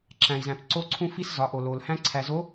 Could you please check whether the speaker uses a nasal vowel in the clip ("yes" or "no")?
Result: yes